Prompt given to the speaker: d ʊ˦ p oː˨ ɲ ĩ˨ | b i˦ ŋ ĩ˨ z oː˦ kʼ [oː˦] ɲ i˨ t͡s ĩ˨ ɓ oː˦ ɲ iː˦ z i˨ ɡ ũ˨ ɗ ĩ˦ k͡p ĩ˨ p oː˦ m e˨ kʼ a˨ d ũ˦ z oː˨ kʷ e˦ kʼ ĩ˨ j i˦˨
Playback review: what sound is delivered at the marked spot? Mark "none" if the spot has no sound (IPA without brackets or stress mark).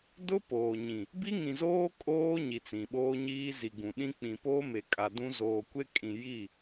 oː˦